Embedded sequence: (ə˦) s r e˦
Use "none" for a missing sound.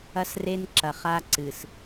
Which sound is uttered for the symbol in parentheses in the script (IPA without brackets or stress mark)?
ɐ˦